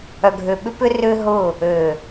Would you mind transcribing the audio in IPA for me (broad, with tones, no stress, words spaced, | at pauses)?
œ˨ɡʱø˨ɓʏ˦pʏ˦ rʏ˦ɦʊ˦˨ | ø˨